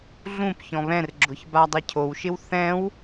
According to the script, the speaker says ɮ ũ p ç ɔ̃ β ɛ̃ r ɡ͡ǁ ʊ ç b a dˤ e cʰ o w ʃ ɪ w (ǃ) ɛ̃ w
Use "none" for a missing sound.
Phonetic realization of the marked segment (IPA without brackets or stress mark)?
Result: θ